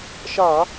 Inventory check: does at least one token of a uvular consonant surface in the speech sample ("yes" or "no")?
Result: no